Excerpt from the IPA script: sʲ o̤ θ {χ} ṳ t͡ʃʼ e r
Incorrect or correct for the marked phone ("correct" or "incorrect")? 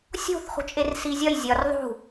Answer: correct